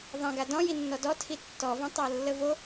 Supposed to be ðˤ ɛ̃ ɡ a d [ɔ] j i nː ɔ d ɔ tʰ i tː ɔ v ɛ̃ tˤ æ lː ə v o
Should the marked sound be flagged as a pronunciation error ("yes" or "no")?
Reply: yes